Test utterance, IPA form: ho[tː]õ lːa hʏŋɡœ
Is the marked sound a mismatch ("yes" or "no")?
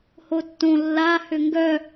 no